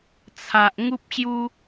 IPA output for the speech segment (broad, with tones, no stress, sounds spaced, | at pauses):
t͡sʰ a˨ ʔ ŋ u˦ p̚ ɕ j u˦